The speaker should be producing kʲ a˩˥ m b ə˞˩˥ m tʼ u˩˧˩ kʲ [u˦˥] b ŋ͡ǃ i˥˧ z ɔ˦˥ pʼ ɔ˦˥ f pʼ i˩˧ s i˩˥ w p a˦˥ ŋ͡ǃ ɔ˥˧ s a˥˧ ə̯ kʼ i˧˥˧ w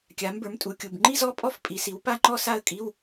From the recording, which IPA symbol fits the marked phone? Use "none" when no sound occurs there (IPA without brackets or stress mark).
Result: u˩˧˩